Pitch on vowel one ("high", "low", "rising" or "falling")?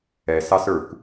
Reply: low